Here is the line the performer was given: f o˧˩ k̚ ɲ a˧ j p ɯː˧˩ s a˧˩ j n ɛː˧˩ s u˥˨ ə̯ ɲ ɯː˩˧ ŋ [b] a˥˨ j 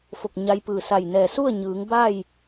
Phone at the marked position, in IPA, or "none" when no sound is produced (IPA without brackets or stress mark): b